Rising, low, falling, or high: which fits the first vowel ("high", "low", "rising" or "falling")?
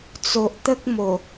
low